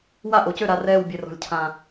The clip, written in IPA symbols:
wa˥˩ʔo˩˧cø˥˩ ɾa˨˩rɛː˨˩w bʲe˨˩rɔ̤˨˩lʲcʰã˨˩

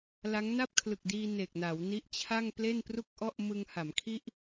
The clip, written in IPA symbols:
la˦˥ŋ na˥˩p̚kʰlɯ˨˩k̚diː˧ ne˨˩k̚na˩˦wni˦˥ʔt͡ɕʰa˥˩ŋ ple˥˩npru˥˩k̚ʔɔ˥˩ʔmɯ˧ŋ ha˩˦mkʰi˥˩ʔ

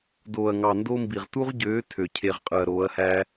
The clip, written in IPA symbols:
doː˨ɐ̯ŋɑ˨ndo˦mbi˨ʁ tu˦ʁɟøː˨˦ tʰø˨cʰe˧ʁ qʼɯ˨ɐ̯ɾoː˨˦ɐ̯hæ˦

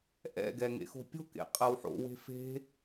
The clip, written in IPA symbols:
ʔɛ̰ɡɛ ŋḛxo̤pʲo̤kḛ qʼɐwħo̰we̤ fe̤

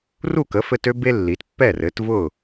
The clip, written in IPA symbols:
ru˥˩kə˩˥fɘ˧t ø˥ be˥lːi˩˥t pːɛ˥˩rɘ˩˥tvʊ˥˩

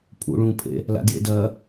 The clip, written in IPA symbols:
pʰṵ ɭũpʰḛ | la̰djḛ dɐ

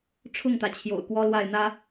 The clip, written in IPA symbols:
ʈ͡ʂʰʊ˥˩ŋt̪ä˩ t͡ɕʰjo̰˨˩ʊ̯kwɔ˥lwa˥˩ɪ̯ n̪ä˥

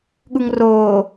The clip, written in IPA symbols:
ɠuŋroː

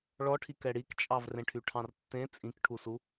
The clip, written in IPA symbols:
ɭɔʈʰi kɛɽikt͡ʃʼɑv rẽʈʰyʈʰɑ̃rtːẽ t͡sʼĩkʈʰusu

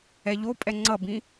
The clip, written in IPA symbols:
ɛʎopʼɛ ŋ͡ǀʌbĩ

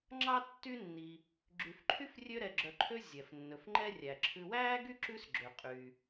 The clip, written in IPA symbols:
ŋ͡ǁɑ˥ tːy˦nːi˨ | ɡ͡ǁy˨fǃʰy˥frʲø˦ɾɛ˨ ɡ͡ǁœ˨ǃʰø˦ zʲɛ˩f nːɵ˩fŋ͡ǃɛ˦ rʲæ˩ǁʰʉ˨wæː˥ ɡy˥ǁʉ˦sɡ͡ǁø˩ qʼy˩

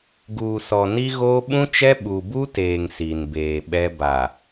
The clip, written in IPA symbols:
ɡuː˨sɔ˨ ni˦ɣoː˦ ɓũ˦t͡ʃɛ˦ ɓu˨bu˦teː˨ŋ si˨nbeː˨ɓɛ˦ ba˨

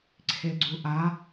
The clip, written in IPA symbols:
ǀʰeɡ͡ǀuʔa

